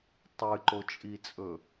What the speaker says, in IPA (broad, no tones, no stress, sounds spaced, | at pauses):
tˤ ɨ ǃ o t͡ʃʼ i t͡sʼ ɵ